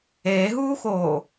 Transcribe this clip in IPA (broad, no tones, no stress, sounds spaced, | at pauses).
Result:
eː ɦ uː x oː